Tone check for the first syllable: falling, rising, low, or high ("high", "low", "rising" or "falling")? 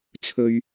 high